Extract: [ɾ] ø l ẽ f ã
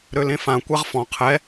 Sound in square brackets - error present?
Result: no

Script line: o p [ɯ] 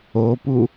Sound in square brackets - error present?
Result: yes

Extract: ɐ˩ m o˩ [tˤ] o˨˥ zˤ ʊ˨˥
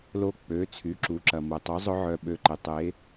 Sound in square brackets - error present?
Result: no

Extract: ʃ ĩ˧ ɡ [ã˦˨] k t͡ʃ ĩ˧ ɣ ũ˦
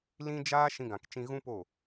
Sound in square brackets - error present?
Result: yes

